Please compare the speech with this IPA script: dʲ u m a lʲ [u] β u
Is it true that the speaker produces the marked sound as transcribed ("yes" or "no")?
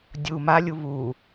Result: yes